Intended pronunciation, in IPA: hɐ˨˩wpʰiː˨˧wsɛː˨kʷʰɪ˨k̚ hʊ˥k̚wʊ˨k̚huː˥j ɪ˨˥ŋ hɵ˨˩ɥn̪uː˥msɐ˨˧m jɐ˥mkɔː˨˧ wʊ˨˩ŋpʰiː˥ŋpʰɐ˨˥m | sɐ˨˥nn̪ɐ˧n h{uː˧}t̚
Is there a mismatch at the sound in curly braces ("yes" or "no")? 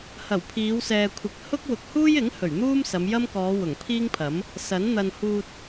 no